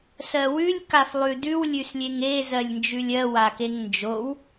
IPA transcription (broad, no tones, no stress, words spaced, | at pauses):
sɜwʉlʲ kaflˠʉdʉw lʲʉslʲeŋe zɜlʲnd͡ʒʉlʲɜ wakeŋnd͡ʒow